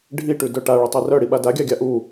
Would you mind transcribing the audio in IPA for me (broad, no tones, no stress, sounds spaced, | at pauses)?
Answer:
ɖʱ i ʈ ʉ d œ ʈ a ɭ œ tˤ e r œ ɽ i ɓ a d a ɡʲ a ɡʲ a ʔ u